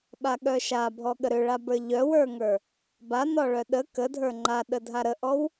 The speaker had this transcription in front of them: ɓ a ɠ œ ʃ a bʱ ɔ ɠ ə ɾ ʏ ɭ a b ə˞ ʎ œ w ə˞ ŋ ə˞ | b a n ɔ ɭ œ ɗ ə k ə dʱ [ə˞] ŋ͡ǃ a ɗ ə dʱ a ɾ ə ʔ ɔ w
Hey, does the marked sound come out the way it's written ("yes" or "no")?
yes